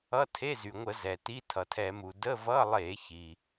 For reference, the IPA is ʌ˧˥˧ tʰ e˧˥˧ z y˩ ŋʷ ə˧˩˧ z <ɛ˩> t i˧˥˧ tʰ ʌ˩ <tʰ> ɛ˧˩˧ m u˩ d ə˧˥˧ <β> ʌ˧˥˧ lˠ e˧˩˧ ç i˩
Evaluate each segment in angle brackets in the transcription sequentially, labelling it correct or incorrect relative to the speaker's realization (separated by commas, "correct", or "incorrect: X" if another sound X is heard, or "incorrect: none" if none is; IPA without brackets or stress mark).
correct, correct, incorrect: v